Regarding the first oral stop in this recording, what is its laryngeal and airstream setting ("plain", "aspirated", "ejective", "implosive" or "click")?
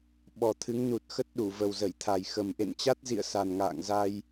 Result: implosive